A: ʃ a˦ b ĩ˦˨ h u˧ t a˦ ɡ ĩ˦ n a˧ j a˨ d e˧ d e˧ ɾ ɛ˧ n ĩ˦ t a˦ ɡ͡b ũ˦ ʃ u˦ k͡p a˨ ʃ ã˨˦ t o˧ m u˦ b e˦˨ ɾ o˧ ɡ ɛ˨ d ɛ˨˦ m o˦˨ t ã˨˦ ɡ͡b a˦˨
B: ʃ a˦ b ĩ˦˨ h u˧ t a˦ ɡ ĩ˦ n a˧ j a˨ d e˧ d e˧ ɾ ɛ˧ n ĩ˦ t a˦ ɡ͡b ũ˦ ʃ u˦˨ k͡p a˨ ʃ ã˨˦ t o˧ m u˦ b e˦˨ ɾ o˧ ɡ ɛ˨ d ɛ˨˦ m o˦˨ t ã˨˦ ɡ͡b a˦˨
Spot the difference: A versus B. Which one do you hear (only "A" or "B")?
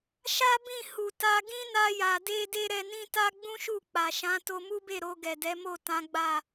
B